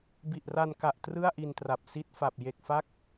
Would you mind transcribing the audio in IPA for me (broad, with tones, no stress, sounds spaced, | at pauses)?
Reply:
b i˨˩ ʔ r a˧ n k a˨˩ ʔ t r ɯ˥˩ a̯ ʔ i˧ n t r a˨˩ p̚ s i˦˥ t̚ f a˨˩ p̚ j e˨˩ k̚ f a˦˥ k̚